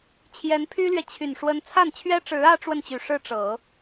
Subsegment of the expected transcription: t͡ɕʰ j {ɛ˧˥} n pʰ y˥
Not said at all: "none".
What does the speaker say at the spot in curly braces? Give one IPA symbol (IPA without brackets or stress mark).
ɛ˧˥